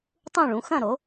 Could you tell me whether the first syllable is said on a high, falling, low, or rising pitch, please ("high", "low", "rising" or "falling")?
falling